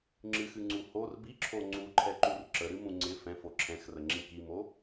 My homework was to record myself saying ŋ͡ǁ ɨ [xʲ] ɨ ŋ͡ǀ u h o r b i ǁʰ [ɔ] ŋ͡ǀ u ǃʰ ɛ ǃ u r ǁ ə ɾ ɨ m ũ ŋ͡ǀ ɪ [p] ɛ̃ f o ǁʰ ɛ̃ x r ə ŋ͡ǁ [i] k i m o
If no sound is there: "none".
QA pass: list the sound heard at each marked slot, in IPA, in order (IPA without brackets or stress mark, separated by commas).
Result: x, o, f, ĩ